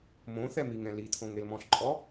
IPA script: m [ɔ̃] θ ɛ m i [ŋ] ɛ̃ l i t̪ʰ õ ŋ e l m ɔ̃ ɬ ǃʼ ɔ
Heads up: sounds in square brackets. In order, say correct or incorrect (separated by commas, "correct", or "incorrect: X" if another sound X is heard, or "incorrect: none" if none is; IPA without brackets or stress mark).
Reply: incorrect: õ, correct